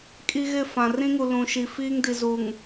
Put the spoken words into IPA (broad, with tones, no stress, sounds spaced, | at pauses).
kʼ i˦ ɣ ɪ˦˨ f ã˨ r ĩ˦ ŋ u˨ l ũ˨ ʃ i˨ f iː˦ ŋ d i˨ z u˨ ŋ